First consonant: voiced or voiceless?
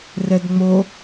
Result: voiced